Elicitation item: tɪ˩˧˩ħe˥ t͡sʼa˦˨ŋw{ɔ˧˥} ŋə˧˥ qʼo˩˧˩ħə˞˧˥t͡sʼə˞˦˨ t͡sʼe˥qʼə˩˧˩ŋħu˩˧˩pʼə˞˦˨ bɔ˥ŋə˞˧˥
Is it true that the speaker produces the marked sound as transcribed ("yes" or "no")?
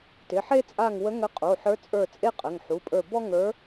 no